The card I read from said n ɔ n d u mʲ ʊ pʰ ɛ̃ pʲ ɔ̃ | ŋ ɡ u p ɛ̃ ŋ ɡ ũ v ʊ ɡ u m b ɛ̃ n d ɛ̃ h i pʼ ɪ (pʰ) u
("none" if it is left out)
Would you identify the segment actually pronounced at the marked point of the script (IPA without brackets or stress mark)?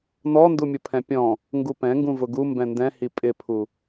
pʰ